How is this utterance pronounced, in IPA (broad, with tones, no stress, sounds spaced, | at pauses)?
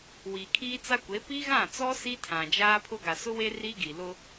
w iː˨ kʰ iː˦ t͡s a˦ kʷ e˨˦ p i˦ ɣ ã˦˨ t͡s ɔ˦ s i˦ tʰ ã˨ d͡ʒ aː˦ pʰ ʊ˦ ɡ a˨ s ʊ˦ w e˦ r i˦ ɡ i˨ l ʊ˦